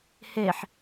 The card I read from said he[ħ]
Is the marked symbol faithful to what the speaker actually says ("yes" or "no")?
yes